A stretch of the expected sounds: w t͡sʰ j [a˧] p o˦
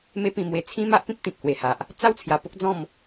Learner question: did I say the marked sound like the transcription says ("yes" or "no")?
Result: yes